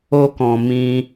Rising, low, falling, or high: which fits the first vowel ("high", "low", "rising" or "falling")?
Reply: high